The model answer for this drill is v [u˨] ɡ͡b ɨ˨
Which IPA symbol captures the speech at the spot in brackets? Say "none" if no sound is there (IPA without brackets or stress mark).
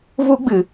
u˦